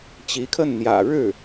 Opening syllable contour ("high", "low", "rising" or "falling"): rising